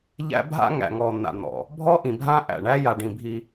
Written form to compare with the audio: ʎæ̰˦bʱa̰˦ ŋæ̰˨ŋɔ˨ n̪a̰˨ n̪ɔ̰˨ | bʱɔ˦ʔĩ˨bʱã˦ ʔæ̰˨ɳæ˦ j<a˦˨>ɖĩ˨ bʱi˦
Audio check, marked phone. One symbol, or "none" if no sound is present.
a˨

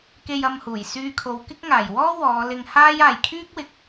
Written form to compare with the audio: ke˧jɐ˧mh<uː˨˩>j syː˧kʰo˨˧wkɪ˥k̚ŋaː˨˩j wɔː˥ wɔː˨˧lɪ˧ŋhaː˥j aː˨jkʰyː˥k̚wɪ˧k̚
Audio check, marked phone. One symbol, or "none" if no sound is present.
uː˨˩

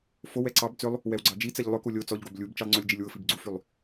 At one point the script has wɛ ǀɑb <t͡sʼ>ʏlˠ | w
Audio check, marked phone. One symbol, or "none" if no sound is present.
t͡s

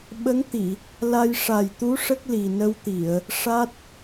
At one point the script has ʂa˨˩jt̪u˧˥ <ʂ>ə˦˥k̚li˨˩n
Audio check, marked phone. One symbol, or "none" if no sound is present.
ʂ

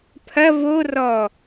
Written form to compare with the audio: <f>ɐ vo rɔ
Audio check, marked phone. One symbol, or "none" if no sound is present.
pʰ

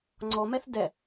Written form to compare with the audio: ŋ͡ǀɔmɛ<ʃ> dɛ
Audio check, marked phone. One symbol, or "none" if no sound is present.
θ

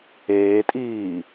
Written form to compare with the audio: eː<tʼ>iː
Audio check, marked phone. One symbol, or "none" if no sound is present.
tʼ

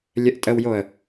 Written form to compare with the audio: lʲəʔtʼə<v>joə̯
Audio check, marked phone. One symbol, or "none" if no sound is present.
w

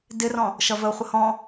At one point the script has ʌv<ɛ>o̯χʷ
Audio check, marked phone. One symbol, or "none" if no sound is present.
ə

